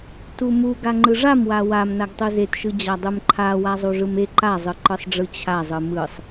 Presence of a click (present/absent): present